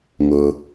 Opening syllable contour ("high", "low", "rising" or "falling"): low